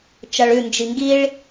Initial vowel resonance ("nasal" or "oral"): oral